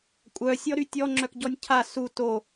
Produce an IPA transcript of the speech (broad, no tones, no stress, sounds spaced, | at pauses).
kʷʼ œ sʲ ɔ ɾ y tʲ ɔ ŋ͡ǁ œ k ɟ ɔ nʲ cʰ a s u t o